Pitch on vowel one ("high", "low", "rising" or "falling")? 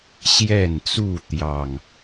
falling